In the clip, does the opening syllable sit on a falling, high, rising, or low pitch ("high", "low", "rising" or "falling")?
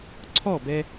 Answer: falling